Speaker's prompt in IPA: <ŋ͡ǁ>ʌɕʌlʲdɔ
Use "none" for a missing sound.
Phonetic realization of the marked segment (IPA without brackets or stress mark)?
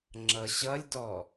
ŋ͡ǁ